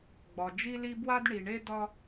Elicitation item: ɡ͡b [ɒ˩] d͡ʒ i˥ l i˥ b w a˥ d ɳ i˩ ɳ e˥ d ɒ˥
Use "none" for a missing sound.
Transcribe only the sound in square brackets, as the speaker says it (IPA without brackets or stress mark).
ɒ˩